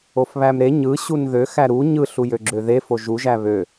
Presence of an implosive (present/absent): absent